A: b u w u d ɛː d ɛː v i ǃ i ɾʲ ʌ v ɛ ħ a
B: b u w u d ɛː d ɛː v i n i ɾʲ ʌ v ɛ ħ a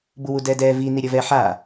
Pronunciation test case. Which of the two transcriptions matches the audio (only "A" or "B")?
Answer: B